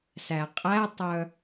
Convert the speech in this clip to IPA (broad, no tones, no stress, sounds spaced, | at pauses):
s æ qʼ æ tˤ œ